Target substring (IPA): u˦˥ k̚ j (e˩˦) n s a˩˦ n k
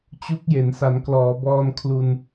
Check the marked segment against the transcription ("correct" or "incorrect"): correct